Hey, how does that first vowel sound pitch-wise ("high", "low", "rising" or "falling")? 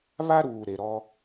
high